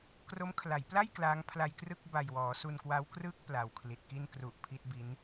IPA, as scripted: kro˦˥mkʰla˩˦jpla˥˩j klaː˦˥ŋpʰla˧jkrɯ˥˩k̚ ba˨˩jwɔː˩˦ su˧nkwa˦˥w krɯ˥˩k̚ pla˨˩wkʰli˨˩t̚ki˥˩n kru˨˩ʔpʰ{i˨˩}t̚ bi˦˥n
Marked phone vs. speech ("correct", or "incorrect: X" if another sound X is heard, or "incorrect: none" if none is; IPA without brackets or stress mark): incorrect: i˦˥